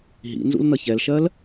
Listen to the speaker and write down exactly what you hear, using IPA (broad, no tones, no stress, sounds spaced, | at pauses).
ɦ ḭ n z ṵ l n ʌ ç ɛ l ʃ ɜ l